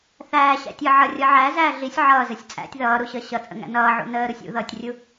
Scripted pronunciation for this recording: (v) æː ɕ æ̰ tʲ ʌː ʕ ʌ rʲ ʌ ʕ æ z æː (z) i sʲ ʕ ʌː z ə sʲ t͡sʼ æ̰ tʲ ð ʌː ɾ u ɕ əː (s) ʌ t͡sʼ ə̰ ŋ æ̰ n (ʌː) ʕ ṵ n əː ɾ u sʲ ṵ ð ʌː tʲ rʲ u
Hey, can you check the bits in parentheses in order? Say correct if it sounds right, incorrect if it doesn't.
incorrect: θ, incorrect: ɮ, incorrect: ɕ, correct

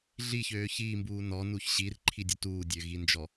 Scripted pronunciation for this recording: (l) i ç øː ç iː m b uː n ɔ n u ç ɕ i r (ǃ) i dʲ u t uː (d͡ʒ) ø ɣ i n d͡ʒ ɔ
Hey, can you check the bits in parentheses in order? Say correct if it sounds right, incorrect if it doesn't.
incorrect: ɮ, incorrect: ǃʰ, incorrect: dʲ

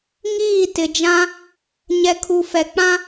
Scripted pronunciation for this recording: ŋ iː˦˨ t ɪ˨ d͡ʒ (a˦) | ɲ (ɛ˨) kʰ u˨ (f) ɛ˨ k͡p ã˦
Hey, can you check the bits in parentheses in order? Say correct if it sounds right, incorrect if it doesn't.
incorrect: ã˦, correct, correct

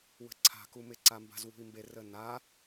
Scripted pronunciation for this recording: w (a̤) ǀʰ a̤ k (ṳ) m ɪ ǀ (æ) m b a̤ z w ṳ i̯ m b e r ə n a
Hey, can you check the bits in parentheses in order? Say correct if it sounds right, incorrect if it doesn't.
incorrect: ə̤, incorrect: u, incorrect: a

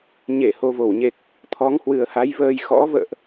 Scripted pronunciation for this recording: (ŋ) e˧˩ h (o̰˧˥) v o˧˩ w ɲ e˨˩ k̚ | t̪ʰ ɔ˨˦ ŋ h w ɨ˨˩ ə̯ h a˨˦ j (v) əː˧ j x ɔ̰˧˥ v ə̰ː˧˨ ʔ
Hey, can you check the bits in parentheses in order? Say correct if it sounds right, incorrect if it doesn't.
incorrect: ɲ, incorrect: o˨˩, correct

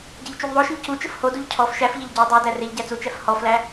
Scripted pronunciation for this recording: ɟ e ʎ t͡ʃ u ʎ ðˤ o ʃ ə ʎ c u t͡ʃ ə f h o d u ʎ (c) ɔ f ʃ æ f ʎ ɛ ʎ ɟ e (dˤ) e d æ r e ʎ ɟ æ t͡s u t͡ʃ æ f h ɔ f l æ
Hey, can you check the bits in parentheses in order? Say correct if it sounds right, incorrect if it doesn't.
incorrect: cʰ, correct

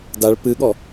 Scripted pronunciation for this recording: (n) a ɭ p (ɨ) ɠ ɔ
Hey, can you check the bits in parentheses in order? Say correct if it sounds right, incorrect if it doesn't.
incorrect: d, correct

